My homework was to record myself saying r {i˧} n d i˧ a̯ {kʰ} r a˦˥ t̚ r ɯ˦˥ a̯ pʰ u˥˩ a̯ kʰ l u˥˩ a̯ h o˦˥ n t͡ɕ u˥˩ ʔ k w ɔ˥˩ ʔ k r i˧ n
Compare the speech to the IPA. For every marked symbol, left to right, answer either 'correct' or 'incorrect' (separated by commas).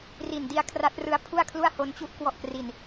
incorrect, correct